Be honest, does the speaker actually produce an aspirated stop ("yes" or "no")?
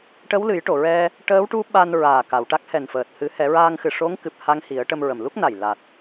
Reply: no